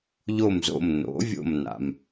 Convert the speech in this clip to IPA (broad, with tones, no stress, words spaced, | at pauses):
ʎo˧˩mzo̰˧˩m no̰˩˥vʲo̰˧˩mna̰˩m